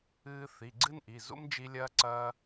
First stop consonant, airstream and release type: click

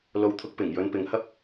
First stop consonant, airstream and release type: aspirated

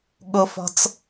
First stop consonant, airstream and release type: implosive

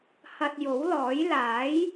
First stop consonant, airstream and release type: plain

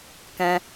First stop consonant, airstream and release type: plain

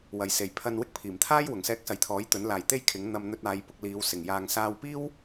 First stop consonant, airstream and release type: aspirated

